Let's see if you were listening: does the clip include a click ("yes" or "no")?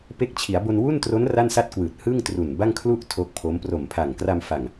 no